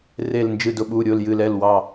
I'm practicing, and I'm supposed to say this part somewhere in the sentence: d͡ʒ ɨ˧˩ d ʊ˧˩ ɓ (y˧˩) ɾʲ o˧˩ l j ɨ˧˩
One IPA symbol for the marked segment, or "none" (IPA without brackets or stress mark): u˧˩